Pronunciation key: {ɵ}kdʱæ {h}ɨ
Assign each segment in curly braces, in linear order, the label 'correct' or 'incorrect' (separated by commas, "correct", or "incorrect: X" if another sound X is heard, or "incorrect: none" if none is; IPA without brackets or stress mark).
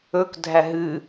correct, incorrect: ɦ